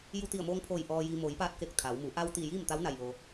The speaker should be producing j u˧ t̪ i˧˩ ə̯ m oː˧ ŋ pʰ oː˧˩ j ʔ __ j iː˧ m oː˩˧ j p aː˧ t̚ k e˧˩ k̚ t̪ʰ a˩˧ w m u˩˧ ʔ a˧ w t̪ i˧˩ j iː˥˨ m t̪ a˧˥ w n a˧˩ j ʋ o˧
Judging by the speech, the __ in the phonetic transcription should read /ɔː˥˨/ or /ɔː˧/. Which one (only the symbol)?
ɔː˧